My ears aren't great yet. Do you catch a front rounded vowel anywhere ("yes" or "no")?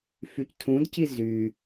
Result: yes